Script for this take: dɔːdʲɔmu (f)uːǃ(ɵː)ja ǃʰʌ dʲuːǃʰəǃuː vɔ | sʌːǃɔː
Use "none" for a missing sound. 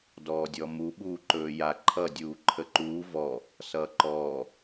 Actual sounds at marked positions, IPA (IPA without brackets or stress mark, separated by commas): ɓ, ɵː